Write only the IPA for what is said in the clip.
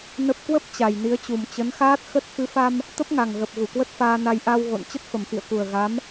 nə˦˥p̚ kwə˦˥p̚ t͡ɕa˨˩jni˨˦ə̯t͡ɕu˨˩m t͡ɕə˨˦nxaː˦˥t̚xə˦˥t̚ fɨ˨˦fa˧m | t̪ə˦˥p̚ŋa˨˩ŋɣə˨˩p̚ ɣu˧˩kwə˦˥t̚faː˧na˧j ʔa˧w ɣo̰˧˨n t͡ɕə˦˥t̚fə˨˩mfḭ˧˨ə̯ku˨˩ə̯ ɣa˨˦m

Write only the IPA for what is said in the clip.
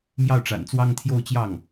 mjɑ˥˩ʊ̯ʈ͡ʂa̰˨˩n t͡swɑ˥ŋt̪ʰjo˥˧ʊ̯t͡ɕjɑ˥˩ŋ

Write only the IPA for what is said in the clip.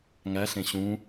ŋæɬẽ ɕũ

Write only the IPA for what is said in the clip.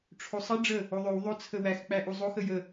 ʈ͡ʂʰosˤə ɖ͡ʐə | oðˤøw ðˤo t͡sʰəwæx k͡pæʔuzˤox əjə

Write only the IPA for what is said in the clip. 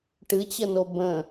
ʈɨt͡ɕəno bə̃

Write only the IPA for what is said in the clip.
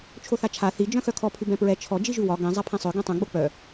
t͡ʃʰoθat͡ʃʰa θi d͡ʒœ̃xœkʰɔ pʰʉbɛ̃pɹɛ t͡ʃʰɔ d͡ʒiʒʉwɒ ɡɛ̃ zˤapʰɛ̃sˤœ ɡɛ̃tˤœ̃ ɡ͡bok͡pœ

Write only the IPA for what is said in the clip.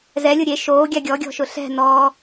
zɛlʲʊ ɾʲe ʃoːɡʲa ɡʲɔɡʲɔ̤ʃʊ ɬɛ̤ nɔ

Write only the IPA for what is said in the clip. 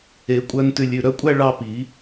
e˨˩˦ kʷʼœ˧ntʉ˧lʲʉ˩˧˩ ɾœ˧kʷʼæ˥˧ ɭɑ˥˧pi˨˩˦

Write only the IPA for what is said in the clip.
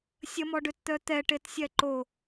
sʲəmɔɖøtt̪œ t̪ɛʈetsʲɛ ǃo

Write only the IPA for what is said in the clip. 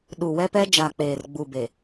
ɗu˨ wɛ˦pɛ˦ d͡ʒa˨ k͡peː˨rɡ͡bu˨be˨

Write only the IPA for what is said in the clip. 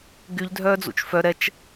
ɡyʎ dʱœːd͡zṵt͡ʃfœ ɾɛt͡ʃ

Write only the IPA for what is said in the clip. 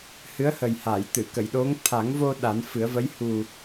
hɨ˧˥ə̯hə˨˩jha˨˩˨jt̪ɨ˨˩˨ kə˨˩˨jɗo˧˥ŋ t̪ʰa˨˩˦ŋvo˧ ɗa˨˩˦nfɨ˨˩˦ə̯və˧˥j hu˨˩

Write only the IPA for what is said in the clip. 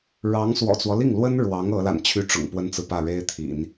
ɻɑ˧˥ŋswɔ̰˨˩t͡swɔ˦ li˥˩ŋlwə˥n ɻwɑ˧˥ŋ ɤ˧˥la̰˨˩n t͡ɕʰy˥˩ʈ͡ʂʊ̰˨˩ŋpwə˥nt͡sɹ̩˨ pä˥˩ɻe˥ɪ̯t̪ʰḭ˨˩˦n

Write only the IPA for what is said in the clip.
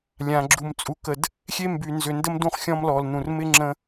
lʲã˨ ɡ͡ǁu˨mt͡sʼu˨kə˨d | xʲe˦mby˨nzʏ˨ndə˦m dũ˦χxʲɔ̃˦mlɔ˨lnũ˨r mɪ˦ ŋ͡ǁə̃˦

